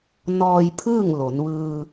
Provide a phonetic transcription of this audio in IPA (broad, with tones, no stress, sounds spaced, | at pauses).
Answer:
n ɔː˧ j pʰ ɯː˥˨ ŋ l o˩˧ n ʋ ɯː˧